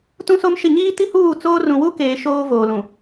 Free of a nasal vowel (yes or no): no